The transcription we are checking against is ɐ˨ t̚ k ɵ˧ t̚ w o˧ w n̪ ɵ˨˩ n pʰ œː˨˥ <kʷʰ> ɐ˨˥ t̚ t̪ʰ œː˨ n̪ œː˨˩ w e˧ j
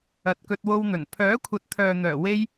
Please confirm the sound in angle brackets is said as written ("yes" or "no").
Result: yes